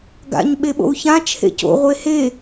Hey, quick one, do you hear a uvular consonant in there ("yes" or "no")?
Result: yes